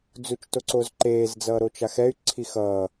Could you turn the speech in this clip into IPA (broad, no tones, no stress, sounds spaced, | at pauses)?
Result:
d͡z u t͡ʃ t o ǀ o z ǃ eː z d͡z ʌː ɾ o t͡ʃ a x ɛ y̯ ǀʰ i x ʌ